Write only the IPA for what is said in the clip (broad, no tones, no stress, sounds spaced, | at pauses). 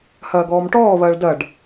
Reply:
h ɐː ɡ ɔː m ʈ ɔː β ɐː ɭ d ɐ ɖ